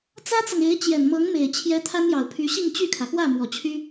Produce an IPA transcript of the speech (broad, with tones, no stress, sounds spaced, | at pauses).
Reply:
t͡s ä˥ t͡s ɤ˨ ŋ e˧˥ ɪ̯ t͡ɕ j ɛ˨˩ n m ɤ˧˥ ŋ m e˨˩ ɪ̯ t͡ɕʰ j ɛ˧˥ t̪ʰ a˥ n j ɑ˨˩ ʊ̯ pʰ y˧˥ ɕ i˥˧ ŋ t͡ɕ y˥˩ kʰ ä˩ x w ä˥˩ m w ɔ˨˩ t͡ɕʰ y˥